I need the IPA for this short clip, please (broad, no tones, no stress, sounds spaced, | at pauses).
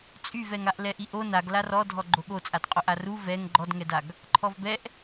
t͡sʼ y v ɛ ŋ a ʔ l ɛ ʔ i ʔ o n a ɡ l a r ɔ dʱ ɔ ɡ͡ǃ o ɠ o t͡sʼ a d qʼ o ʔ a r u v ɛ ŋ ɡ͡ǃ ɔ d ŋ ɛ d a ɡ | ǃʰ ɔ v b ɛ ʔ